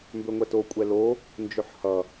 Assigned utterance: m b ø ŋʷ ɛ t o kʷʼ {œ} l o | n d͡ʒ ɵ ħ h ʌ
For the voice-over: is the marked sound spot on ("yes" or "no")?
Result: no